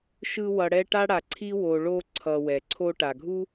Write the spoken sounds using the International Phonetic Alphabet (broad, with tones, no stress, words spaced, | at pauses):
ʃɯ˦wʌ˨ɽɛ˦ʈa˥ ɽa˨ǀʰi˥wo˨ ɭo˦ǀʰʌ˩ wɛ˩ǀʰo˦ ʈa˩ɡʱu˥